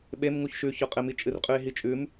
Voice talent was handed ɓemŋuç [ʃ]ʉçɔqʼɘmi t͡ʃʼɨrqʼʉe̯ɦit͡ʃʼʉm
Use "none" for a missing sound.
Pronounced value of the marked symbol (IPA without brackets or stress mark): ʃ